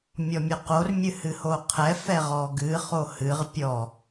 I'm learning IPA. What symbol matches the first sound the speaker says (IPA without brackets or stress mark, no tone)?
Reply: mʲ